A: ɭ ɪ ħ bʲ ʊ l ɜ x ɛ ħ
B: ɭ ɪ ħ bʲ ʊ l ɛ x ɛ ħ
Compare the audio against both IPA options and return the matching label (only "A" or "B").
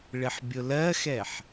A